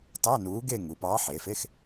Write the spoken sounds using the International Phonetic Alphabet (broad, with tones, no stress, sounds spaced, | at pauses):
t ɑ˧˥˧ n uː˨˥ ɡ e˥˧ ŋ u˩˧ p ɑː˨˥ ħ eː˩˧ f e˧˥˧ x